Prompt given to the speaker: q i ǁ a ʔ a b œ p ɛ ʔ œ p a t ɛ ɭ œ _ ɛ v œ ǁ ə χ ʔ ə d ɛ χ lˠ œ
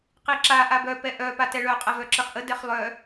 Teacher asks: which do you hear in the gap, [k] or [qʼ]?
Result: qʼ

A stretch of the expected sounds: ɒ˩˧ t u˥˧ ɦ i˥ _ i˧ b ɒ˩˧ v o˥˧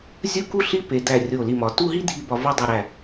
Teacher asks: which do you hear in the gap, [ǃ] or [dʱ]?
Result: dʱ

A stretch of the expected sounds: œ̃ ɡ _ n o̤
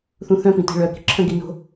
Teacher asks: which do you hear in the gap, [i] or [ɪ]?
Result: i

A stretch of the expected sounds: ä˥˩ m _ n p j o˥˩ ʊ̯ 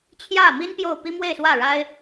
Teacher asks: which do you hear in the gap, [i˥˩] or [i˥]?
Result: i˥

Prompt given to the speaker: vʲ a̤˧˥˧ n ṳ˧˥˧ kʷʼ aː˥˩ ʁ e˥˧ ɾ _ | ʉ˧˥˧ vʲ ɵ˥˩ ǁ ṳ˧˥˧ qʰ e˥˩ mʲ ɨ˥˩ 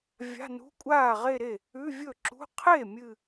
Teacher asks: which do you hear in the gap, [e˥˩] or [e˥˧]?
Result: e˥˩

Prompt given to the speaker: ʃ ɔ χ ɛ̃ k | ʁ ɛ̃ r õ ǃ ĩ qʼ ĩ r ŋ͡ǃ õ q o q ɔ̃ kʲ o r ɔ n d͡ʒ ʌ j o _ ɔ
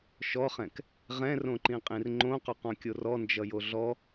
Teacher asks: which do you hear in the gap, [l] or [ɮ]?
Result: ɮ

